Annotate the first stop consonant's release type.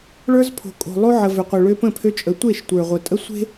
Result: aspirated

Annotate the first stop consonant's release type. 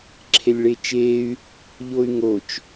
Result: click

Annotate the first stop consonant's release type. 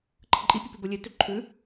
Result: click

